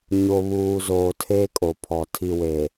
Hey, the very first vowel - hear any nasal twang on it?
no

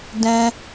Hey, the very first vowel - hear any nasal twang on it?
yes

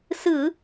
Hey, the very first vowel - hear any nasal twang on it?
no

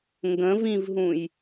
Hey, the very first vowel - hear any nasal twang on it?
yes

